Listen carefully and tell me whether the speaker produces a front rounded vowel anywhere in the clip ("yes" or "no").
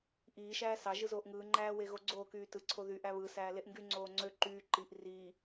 yes